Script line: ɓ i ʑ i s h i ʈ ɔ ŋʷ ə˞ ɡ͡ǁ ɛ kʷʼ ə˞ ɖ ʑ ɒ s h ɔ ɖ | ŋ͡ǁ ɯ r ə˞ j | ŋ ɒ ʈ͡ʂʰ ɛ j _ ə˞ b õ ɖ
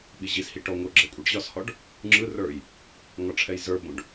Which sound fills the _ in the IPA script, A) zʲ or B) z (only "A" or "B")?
B